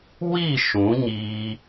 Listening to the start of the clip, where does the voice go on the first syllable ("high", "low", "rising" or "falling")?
falling